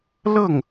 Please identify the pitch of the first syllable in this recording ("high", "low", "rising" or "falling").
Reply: falling